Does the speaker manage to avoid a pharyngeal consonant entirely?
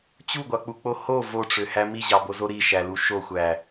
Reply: yes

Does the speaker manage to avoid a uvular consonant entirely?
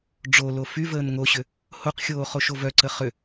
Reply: no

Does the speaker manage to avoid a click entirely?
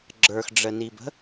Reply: no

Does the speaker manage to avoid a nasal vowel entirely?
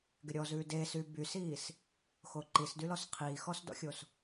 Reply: yes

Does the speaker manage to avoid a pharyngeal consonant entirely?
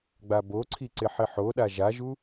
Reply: no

